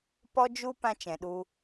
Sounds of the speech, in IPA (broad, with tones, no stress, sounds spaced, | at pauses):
p ɔ˦ d͡ʒ u˦ p ã˦ t͡ʃ ɛ̃˨ ɗ u˧